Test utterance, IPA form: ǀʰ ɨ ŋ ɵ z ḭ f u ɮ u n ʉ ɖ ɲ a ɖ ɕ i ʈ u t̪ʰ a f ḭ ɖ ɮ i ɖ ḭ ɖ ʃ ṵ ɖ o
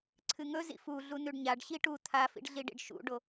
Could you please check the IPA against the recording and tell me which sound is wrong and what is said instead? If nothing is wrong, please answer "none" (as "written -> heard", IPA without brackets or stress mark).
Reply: none